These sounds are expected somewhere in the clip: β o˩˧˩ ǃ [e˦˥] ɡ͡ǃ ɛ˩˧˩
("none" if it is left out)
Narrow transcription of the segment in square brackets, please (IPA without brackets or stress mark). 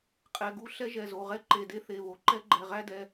ɛ˦˥